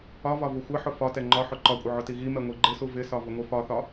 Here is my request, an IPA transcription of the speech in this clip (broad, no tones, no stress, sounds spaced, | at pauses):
ɒ v ɒ v u xʷ ɪ ħ ʊ f ɒ t ɛ ŋ͡ǃ ɒ ħ ʊ ǃ ɒ kʷʼ ɪ ʕ ʊ t i ɣ i m ɛ ŋʷ i ɡ͡ǃ ɪ s u v ɪ s ɒ v ʊ ŋʷ i f ɒ θ ɒ